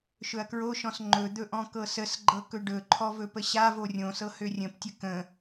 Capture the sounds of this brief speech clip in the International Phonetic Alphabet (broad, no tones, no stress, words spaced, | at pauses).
ʃɵɐ̯kɹoʃɔ̃s ŋ͡ǃɵd̪ɵ ʔɔ̃kɤsəsɡ͡ǃɤ kɵɖɵǃʰɔ vɵpəɕavo rʲõsɤ hørʲə̃ptʲə kə̃